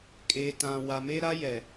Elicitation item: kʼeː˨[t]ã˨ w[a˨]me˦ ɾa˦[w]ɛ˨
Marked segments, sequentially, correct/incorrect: correct, correct, incorrect: j

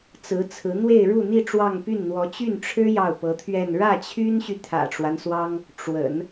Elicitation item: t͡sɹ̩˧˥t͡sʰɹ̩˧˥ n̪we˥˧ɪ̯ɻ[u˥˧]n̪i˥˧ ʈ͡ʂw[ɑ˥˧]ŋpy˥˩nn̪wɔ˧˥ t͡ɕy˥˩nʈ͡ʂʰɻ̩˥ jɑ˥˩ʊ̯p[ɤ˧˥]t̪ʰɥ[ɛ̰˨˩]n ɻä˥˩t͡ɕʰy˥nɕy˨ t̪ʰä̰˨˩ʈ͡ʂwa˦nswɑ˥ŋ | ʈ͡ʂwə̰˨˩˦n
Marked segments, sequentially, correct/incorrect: correct, correct, correct, incorrect: ɛ˥˧

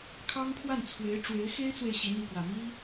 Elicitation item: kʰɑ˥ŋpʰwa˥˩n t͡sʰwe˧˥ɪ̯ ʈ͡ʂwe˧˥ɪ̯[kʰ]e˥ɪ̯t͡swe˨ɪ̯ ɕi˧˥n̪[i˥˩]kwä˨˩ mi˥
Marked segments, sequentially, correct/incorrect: incorrect: x, correct

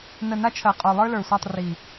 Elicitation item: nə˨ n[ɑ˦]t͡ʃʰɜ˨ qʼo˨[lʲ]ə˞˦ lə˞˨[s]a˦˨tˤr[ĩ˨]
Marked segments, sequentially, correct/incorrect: incorrect: a˦, incorrect: lˠ, incorrect: sʷ, incorrect: i˨

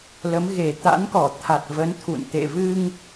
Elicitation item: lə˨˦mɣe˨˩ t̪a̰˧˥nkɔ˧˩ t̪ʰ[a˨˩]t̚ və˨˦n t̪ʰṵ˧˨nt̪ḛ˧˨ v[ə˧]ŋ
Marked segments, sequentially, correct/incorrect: correct, incorrect: ɨ˧

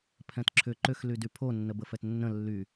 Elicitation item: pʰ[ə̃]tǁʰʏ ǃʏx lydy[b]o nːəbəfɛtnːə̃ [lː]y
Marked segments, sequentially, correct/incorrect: incorrect: ɛ̃, incorrect: pʰ, correct

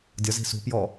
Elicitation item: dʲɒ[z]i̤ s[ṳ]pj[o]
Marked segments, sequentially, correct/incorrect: correct, correct, incorrect: ɔ

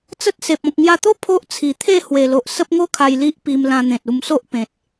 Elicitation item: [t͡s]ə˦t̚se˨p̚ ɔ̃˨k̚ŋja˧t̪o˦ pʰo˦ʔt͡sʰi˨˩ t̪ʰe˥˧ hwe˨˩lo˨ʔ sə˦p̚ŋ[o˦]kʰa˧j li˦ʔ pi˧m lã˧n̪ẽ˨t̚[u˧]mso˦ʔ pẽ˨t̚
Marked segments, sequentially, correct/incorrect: correct, correct, correct

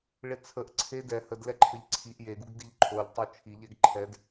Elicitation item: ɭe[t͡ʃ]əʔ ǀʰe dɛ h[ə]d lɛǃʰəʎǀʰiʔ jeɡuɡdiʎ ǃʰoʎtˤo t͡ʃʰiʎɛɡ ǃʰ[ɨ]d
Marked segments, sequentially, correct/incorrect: incorrect: t͡sʰ, correct, incorrect: ɛ

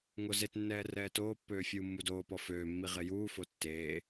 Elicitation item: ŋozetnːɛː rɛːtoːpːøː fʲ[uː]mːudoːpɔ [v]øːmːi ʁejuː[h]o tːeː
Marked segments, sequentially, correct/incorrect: correct, incorrect: f, incorrect: f

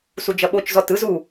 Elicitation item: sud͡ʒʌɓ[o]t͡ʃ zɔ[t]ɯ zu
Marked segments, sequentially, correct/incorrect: correct, correct

